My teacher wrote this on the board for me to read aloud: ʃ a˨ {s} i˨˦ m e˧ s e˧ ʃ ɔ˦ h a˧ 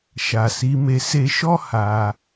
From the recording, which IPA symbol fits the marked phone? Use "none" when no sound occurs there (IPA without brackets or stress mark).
s